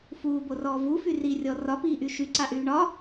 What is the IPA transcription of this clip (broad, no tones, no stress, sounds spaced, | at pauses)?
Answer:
f uː b o r ɔː v u f y r i rʲ ɔ r ɒ p iː ʔ y ʃ y ǀ a ʔ yː ɳ ɒ